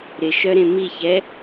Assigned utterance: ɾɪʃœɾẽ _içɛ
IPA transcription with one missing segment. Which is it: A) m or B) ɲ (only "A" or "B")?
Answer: A